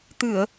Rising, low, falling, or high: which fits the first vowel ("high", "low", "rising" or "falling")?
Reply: low